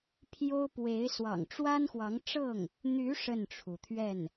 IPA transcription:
pʰ j o˥ ʊ̯ p w e˧˥ ɪ̯ s w ɑ̰˨˩ ŋ ʈ͡ʂ w a˥ n x w ɑ˧˥ ŋ ʈ͡ʂ ɤ˥˩ ŋ | n̪ y˧˥ ʂ ə˥˩ n ʈ͡ʂʰ u˩ t̪ʰ ɥ ɛ˥˩ n

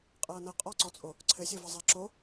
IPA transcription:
qʼ ɤː n ɤ qʼ ɔ ǀ ɔ t͡sʼ o | ǀʰ ɘ sʲ o v ɐ zˤ a ǁ o

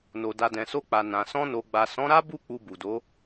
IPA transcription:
n o˨ d a˨ d ɛ̃˨ s o˧ k͡p a˨ n ã˨ s ɔ̃˧ n o˨ ɡ͡b a˨ s ɔ̃˨˦ ɾ a˦ b u˦˨ k͡p u˧ b u˨ d o˨˦

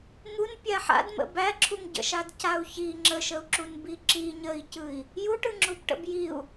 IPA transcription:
ŋ u n pʲ a ħ a̰ d m ə̰ b æ ǁʰ u ŋ ɟ ə̰ ʃ a d c a u̯ ç i ŋ͡ǁ ə ʃ ə u̯ ǁ u n b i ǁ i ɲ ə i̯ c ɯ i̯ | j u ʈ ɯ ŋ͡ǁ u b ʈ ə̰ b j i u̯

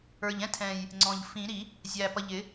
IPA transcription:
ə˞˨˩ ʎ ɛ̃˥ tʰ ɛ̃˨˩ j | ŋ͡ǀ ɔ̃˨˩ ʎ f ĩ˨˩˦ ɾ i˨˩˦ | zʲ æ˨˩ p ʌ˨˩ ʎ ɪ˨˩˦

